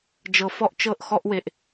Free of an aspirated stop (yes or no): yes